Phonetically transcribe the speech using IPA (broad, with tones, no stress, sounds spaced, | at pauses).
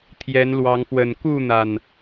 t̪ʰ j ɛ˨˦ n l w ɑ˨˦ ŋ f w ə˨˩ n k u˥˨ n̪ a˨˩ n